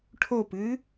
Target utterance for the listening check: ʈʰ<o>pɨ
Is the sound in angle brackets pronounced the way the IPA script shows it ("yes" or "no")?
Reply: yes